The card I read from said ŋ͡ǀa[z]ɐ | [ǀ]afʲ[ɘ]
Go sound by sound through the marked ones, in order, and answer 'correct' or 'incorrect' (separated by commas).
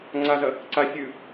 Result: correct, correct, incorrect